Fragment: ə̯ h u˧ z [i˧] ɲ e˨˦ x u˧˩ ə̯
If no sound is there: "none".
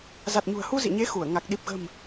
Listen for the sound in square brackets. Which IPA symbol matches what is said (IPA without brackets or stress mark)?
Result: ḭ˧˨